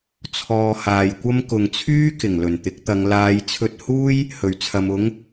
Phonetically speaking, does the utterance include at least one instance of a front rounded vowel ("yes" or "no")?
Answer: yes